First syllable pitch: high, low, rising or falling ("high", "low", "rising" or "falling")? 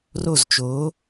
falling